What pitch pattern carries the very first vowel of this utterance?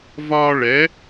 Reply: high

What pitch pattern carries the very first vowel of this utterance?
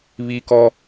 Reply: high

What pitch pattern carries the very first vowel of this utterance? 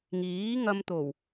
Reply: rising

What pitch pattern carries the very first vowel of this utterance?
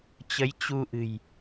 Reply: rising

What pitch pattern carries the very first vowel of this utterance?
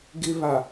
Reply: high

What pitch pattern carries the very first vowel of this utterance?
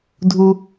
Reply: high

